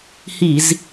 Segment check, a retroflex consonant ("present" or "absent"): absent